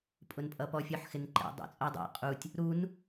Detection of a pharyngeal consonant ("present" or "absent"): present